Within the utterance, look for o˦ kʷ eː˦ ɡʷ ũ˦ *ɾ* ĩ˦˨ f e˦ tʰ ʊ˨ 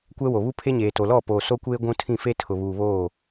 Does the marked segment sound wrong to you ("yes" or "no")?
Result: yes